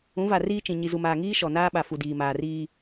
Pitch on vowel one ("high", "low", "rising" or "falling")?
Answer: rising